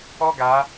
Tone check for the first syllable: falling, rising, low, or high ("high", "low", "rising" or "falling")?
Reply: high